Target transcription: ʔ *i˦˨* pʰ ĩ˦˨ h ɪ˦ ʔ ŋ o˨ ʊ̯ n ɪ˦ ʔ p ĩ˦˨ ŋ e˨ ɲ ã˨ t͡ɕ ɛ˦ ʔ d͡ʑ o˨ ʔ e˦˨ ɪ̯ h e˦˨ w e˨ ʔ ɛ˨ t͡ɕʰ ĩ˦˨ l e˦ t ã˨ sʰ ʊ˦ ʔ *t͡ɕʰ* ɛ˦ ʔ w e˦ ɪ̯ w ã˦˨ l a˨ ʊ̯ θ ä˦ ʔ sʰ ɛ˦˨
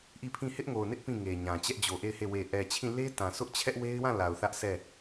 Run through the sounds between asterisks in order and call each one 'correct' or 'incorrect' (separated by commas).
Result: correct, correct